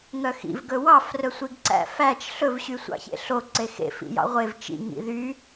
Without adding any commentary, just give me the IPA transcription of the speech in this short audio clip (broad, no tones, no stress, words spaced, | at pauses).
ŋœxḭv ɡɵwɑf rɵsʷiɡǀæ̰fæt͡ʃ ɬɵv ɕysʷɑ̰çḛɬo ǀexḛ fḭjɑ̰ʁʷev t͡ʃḭ ŋḭðy